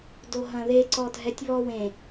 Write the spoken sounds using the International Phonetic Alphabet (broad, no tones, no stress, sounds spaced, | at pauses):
d o ɦ ɐ̃ ð e ǀ ɔ dʱ ɛ tʲ β ɔ w ẽ